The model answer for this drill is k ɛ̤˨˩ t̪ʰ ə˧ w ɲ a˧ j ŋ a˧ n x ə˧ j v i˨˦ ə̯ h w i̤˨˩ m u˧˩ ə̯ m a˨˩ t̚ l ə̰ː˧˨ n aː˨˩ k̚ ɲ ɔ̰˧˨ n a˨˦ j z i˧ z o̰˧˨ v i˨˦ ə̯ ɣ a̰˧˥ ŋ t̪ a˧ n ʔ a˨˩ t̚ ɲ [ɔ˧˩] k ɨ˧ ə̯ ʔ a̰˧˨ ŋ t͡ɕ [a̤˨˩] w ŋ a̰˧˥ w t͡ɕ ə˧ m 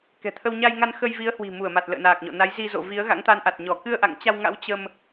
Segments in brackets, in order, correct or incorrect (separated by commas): correct, incorrect